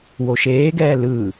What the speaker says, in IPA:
w o ʃ eː ɡ ɛː l ɯ

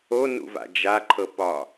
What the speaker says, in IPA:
o n ṵ v a̰ d͡ʒ a ǃʰ ɤ p ɒ

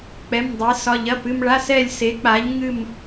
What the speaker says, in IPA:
k͡p ɛ˧˥˧ m dˤ ɛ˧˥ s ɒ˧˥˧ ʎ ɐ˧˥˧ p ɨ˥˧ m ɭ a˧˥˧ s ɛ˥˧ lʲ s e˧˥ k͡p a˧˥ ʎ ŋ ɨ˥˧ m

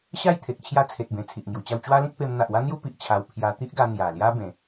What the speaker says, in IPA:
ɕ a˥˧ j t̪ʰ e˨ k̚ t͡ɕʰ j a˦ t͡sʰ e˨ t̚ b ẽ˨˩ t͡sʰ i˨ ʔ ŋ j u˨˩ t͡ɕ a˥˧ w t͡ɕ w a˦ l ĩ˦ k̚ p e˧ m n̪ a˨ ʔ w a˦ n̪ j u˦ p i˨ ʔ t͡ɕʰ a˧ w pʰ j a˧ t̪ i˦ ʔ ɡ a˧ n̪ j a˨˩ l j a˦ b ẽ˨˦

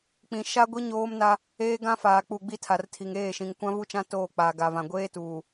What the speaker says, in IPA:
k͡p ĩ˨ ʃ a˦ ɡʷ i˦ ɲ oː˦ m n a˦ | eː˦ ɡ ã˦ f aː˨ k͡p u˨ ɡ͡b i˦ tʰ a˨ r tʰ i˨ ŋ eː˦˨ ʃ ĩ˨ ŋ kʷ ã˦ v u˦ t͡ʃ ã˦ t oː˦˨ k͡p aː˨ ɡ a˨ v ã˨ ɡʷ eː˦ t uː˨

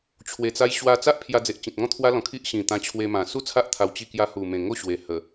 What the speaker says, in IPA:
t͡ɕʰ w e˧ t͡s a˦ j ɕ w a˧ t͡s a˦ ʔ pʰ j a˧ d͡z e˨ ʔ t͡ɕ ĩ˨ t̚ ŋ ɔ̃˦ t̪ʰ w a˦ l ɔ̃˨˩ kʰ i˦ ʔ ɕ ĩ˨˩ t̪ ã˧ t͡ɕʰ w e˧ m ã˨˩ s u˥˧ t͡sʰ a˦ ʔ t̪ʰ a˧ w t͡ɕ i˥˧ k j a˦ h u˨˩ m ẽ˨˩ ŋ o˥˧ ɕ w e˨˩ h ə˨˩

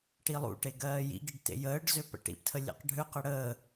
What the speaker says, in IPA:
ʈ i lˠ ṵ ʈ e ɡ ɜː j ḭ ɡ i ɖ t ḛ j əː ɖ z ø p ə̰ ʈ ḭ p tʰ ə lʲ ḛ q ɖʱ ø q ə ɽ əː

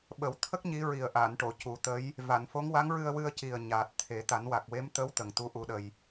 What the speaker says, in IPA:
ɓ ə˨˩˦ w t̪ʰ ə˦˥ k̚ ɲ i˧˥ ɹ i˨˩ ə̯ ʔ aː˨˩˨ n ʈ o˨˩˨ c u˨˩˦ t̪ ə˧˥ j | v a˨˩˨ n f o˧˥ ŋ w a˧˥ ŋ ɹ ɨ˧ ə̯ w ɨ˧ ə̯ c i˨˩ ə̯ ɲ aː˨˩ t̚ t̪ʰ e˨˩˦ t̪ a˨˩˦ n w a˨˩ k̚ w e˧˥ m t̪ ə˧˥ w t̪ ə˨˩ ŋ t̪ u˧˥ ʔ u˧˥ ɗ ə˧ j

